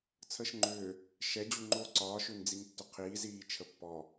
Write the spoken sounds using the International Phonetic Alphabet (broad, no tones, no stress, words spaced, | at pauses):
t͡sʰəːʃŋ͡ǃʏː | ʃɛ d͡ʑuŋ͡ǃoːǀɒːʃʏːn d͡ziŋtːʏqʰiːziː t͡ʃʰəpːɔ